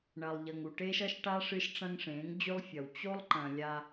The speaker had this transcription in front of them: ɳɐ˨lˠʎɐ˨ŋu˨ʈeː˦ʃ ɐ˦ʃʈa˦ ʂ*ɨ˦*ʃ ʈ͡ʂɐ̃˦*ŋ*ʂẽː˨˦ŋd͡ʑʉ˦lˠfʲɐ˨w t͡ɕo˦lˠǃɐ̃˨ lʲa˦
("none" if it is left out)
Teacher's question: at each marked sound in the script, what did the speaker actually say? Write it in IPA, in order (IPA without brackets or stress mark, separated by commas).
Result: ɨ˦, ŋ